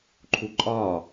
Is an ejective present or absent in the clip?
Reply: present